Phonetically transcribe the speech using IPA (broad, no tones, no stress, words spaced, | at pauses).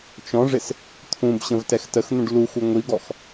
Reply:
t͡ʃɔ̃ʐɪs | t̪ʰũbɕə̃v tɛxtəxn̪ũɖ luxu ŋʷiɡɔx